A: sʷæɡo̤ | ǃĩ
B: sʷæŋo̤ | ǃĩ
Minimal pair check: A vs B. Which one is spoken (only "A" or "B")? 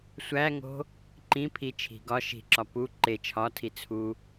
B